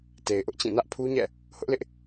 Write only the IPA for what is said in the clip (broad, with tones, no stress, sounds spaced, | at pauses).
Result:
t e˨ ɪ̯ ʔ ʊ˦ ʔ t͡ɕ ĩ˦˨ n ä˦ ʔ pʰ u˦ ɲ ɛ̰˦˨ | h ʊ˦ ʔ l ɪ˦ ʔ